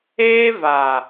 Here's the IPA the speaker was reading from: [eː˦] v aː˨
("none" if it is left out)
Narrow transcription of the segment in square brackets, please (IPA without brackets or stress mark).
eː˦